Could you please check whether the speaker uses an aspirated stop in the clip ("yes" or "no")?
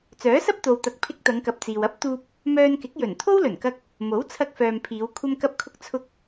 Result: yes